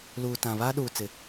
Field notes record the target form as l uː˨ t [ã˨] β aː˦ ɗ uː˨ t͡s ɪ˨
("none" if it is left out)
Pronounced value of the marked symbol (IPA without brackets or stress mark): ã˨